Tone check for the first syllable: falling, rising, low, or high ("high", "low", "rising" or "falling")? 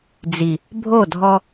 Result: low